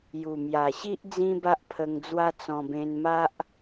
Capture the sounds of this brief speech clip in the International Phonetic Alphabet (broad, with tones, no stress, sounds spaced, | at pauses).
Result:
j u˨˩ m j a˨˩ ɕ i˦ ʔ d͡z ĩ˦ b a˦ ʔ pʰ ə˧ ŋ d͡z w a˦ t͡s ɔ̃˧ b ẽ˧ n m a˦ ʔ